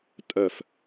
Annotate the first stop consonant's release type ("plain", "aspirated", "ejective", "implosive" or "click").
ejective